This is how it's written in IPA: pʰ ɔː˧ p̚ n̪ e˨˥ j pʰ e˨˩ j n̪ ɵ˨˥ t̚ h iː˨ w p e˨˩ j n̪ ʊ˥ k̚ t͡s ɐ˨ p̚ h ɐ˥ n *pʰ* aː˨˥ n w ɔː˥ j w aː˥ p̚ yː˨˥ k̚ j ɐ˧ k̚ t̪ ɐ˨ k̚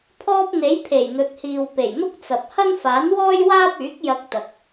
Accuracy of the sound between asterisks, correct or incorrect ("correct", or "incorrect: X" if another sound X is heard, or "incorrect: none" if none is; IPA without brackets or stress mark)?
incorrect: f